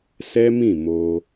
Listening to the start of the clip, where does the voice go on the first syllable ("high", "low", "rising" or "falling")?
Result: high